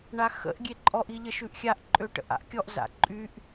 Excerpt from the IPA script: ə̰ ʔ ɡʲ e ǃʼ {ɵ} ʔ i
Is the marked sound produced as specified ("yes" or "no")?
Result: no